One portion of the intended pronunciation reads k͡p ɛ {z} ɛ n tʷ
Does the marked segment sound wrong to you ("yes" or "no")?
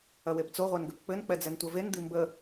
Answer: yes